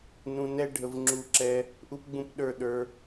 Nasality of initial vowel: nasal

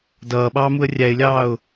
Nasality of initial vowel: oral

